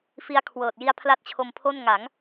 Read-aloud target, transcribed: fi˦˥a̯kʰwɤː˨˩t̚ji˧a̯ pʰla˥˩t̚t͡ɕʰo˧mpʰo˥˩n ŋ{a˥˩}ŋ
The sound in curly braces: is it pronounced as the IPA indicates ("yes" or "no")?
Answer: no